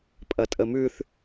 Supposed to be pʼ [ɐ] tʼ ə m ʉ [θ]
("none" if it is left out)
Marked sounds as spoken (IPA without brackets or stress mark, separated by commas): ɐ, θ